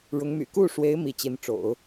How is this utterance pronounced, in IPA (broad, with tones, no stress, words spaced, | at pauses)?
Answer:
ɻʊ˧˥ŋmy̰˨˩ ku˥˩ʂwe˧˥ɪ̯ mi˧˥t͡ɕi˧˥nʈ͡ʂo̰˨˩˦ʊ̯